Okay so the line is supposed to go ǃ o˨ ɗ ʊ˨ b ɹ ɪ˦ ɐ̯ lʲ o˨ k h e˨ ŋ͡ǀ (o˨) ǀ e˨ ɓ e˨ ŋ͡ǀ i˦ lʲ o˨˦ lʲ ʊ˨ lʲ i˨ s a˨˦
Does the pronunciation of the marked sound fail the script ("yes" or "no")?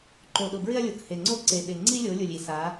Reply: yes